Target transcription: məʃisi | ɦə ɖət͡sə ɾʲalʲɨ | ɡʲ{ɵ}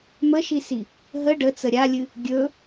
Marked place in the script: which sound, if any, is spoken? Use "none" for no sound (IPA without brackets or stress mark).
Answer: ɵ